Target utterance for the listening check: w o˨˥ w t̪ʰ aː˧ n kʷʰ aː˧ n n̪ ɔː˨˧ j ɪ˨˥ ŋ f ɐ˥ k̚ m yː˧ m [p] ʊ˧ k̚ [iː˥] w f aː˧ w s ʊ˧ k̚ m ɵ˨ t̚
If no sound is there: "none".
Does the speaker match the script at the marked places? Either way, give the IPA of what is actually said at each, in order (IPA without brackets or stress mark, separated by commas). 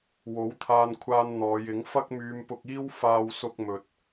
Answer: p, iː˥